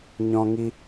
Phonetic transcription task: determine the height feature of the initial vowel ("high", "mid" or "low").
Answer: mid